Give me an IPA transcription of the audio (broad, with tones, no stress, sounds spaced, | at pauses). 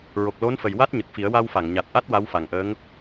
ɹ o˨˩ k̚ l o˧˥ n f ə˨˩ j w a˦˥ t̚ ɲ ə˨˩ k̚ f i˨˩˦ ə̯ w a˧ w f a˨˩˨ ŋ ɲ a˨˩ t̚ ʔ a˦˥ t̚ w a˧˥ w f a˨˩ ŋ ʔ əː˧˥ ŋ